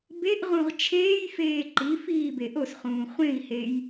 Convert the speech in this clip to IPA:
beʔʁũʁ t͡ʃʰeːjfeː ǃi fiːbeʔosχũː χʷẽi̯hej

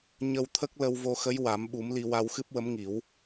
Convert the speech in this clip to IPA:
ɲə˧wt̪ʰə˦˥k̚ lə˧wvo˧xə˧˥j wa˨˩˦mɓu˨˩˦mli˧ wa˧wxɨ˦˥p̚wə˧˥mŋi˨˩˦w

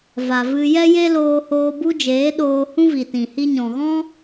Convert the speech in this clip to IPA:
va˨vɨ˧ jɛ˦je˦loː˧hoː˧ bu˦d͡ʒeː˨˦ɗoː˧ hũ˦vi˨tĩ˨ hi˧ɲɔ̃˨ɣɔ̃˦

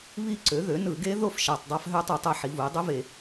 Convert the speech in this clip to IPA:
βi˥˧ǀø˩˥ðø˩˥ nɯ˧˩˧ɡe˦˥ ðo˥˧f ʃæ˨˩tˤdˤɑ˦˥fɦø˦˥tˤɯ˧˩˧tˤ e˩˥ ħi˩˧vu˩˧jdˤø˦˥ve˧˩˧

